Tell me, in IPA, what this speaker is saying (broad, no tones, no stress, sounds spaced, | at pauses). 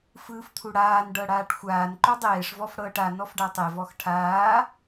f ɯː f t̪ʰ u ɽ aː n ɖ ɤ ɽ aː ʈ xʷ aː n ǃ o dˤ eː ʂ v ɔ f ɽ ɤː ʈ a n ɔ f ɖ a tˤ e v ɔ x ʈʰ aː